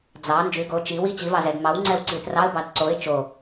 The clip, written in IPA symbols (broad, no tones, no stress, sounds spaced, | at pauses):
d͡z ɑ n d͡ʒ y ɡ o t͡ʃ i w i t͡ɕ i v ɑ z ɛ d m ɑ w ŋ͡ǀ ɛ w ǀ i t r ɑ ə̯ b ɑ d ǀ o ɪ̯ t͡ʃ o